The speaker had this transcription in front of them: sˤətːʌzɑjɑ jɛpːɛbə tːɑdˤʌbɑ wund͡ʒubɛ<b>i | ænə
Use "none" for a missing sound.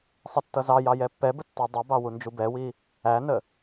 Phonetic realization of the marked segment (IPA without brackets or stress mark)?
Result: w